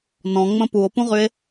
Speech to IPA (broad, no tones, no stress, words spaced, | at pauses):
nɔ̃ŋ͡mə̃ puo̯pũʁye̯